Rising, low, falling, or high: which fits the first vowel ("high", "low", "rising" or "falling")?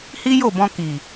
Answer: high